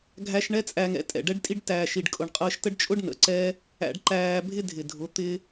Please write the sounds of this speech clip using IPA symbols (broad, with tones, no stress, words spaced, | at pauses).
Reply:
ɡʱæ˧ʃ ɳɛ˦t͡sʼæ˧ŋɛ̰˧ tʼɛ̰˨ɖɛ˦ɖtʼi˦ɖ tæː˨ʃi˨ɖkʼʊ˨ɳqʼəː˧ʃ tə˦ɖt͡ʃʼʊ˦ɖ nə̰˨ǀɛ˦ | æ̰˧ɖǃæː˧bʱɪ˦ dʱɪ˨dʱʊ˨˦ t̪ɪ˦